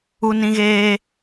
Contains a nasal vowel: yes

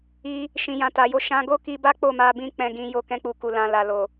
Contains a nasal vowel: yes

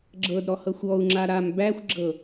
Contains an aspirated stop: no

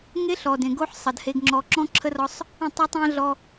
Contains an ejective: no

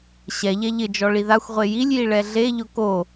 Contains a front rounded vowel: no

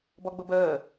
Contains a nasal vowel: no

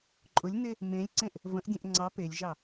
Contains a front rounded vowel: no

